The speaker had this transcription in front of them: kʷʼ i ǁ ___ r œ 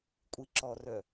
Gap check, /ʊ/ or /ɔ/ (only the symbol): ɔ